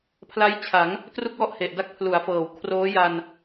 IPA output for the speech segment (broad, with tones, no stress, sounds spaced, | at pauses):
pʰ l a˦˥ j t͡ɕʰ a˩˦ ŋ | t r u˥˩ k̚ w ɔ˥˩ ʔ h e˨˩ ʔ d a˥˩ k̚ pʰ l u˩˦ a̯ f ɤː˩˦ w kʰ r oː˦˥ j a˧ n